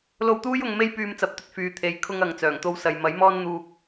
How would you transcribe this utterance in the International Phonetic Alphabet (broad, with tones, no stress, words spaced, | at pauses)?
lo˧wt̪uː˥j ʊ˧ŋme˥j pyː˧mt͡sɐ˨˥p̚t̪ɵ˨˥t̚ fyː˨t̪ʰe˨˥j kʰʊ˥ŋɐ˨ŋ t͡sœː˨˩ŋt̪o˧wsɐ˨j mɐ˨˥jmɔː˥nn̪uː˧k̚